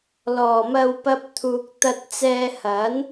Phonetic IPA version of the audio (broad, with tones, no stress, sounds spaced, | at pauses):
l ɔː˨˩ m ɐ˧ w p ɐ˥ p̚ t̪ʰ uː˧ k̚ t̪ ɐ˥ t̚ t͡s ɛː˧ h ɐ˨˥ n